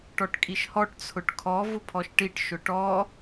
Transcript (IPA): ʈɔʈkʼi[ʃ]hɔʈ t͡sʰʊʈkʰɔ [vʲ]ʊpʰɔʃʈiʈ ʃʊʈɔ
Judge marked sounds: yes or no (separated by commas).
yes, no